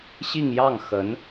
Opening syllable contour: falling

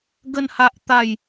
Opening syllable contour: falling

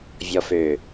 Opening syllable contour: low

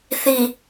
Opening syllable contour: low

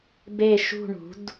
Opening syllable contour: falling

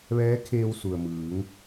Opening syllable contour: rising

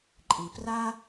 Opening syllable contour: low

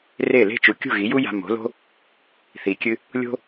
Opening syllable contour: falling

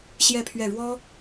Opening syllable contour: falling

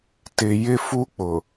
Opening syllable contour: low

